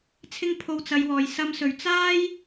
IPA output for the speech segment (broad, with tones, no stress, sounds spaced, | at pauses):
t͡sʰ ɪ˥ ŋ pʰ o˧ w t͡s ɐ˨˧ j w ɔː˨˩ j s ɐ˧ m s ɵ˨˩ ɥ t͡s aː˥ j